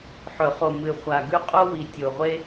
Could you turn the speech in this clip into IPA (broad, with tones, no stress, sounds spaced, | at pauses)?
ħ ɵ˨˩˦ χ o˨˩ m ɨ˨˩ χʷ a˨˩ ɡ ʉ˥ qʼ o˥ w i˨˩ tʲ o˨˩ ʁʷ e˥